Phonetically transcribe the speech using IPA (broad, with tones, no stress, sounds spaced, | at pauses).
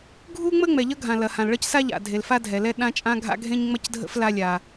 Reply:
ɡʱ u˥ ŋ͡m ə˥ ŋ͡m ɛ˩ ʎ ʌ˥ ɡʱ ã˩ l ɐ˩ h ã˩ l ɭ ʌ˥ c s a˥ ʎ a̰˩ dʱ e˩ l f a˥ dʱ ɛ˩ l ɛ˥ ɗ ã˥ t͡ʃʼ ã˥ ɡʱ a̰˥ ɡʱ ẽ˥ ɲ ŋ͡m ɐ˥ c dʱ ə̰˥ f l a˥ lʲ a˩